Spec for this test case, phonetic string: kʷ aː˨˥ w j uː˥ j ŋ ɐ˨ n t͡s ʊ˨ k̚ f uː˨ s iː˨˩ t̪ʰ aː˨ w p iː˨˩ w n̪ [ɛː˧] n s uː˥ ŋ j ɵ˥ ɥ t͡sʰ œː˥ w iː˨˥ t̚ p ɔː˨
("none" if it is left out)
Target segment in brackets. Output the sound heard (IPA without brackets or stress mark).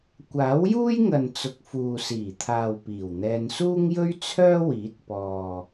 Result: ɛː˧